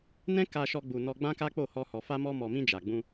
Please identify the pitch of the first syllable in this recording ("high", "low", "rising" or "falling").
high